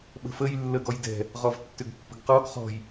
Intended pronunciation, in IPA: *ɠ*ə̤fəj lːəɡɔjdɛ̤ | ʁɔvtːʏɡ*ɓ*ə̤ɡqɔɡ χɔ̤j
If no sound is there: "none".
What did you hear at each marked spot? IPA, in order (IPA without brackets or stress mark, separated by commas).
ɓ, pː